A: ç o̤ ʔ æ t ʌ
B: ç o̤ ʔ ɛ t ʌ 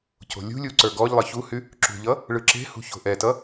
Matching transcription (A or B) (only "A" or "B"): B